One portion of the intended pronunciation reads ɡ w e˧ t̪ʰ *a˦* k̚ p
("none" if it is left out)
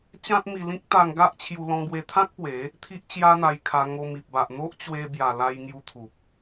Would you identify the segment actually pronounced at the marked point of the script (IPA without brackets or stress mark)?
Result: ã˦